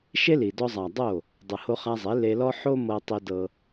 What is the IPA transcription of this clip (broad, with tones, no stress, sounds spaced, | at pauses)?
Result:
ʃ e˦ l i˨ d ɔ˧ zˤ a˨ dˤ o˦˨ | dˤ ɯ˨ h o˧ χ a˧ zˤ e˨˦ l e˧ l ɔ˦ ħ o˦ m ɤ˦ tˤ i˦ d ɤ˦